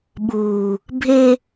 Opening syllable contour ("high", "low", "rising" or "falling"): low